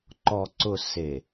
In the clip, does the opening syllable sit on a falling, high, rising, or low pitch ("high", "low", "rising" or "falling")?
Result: low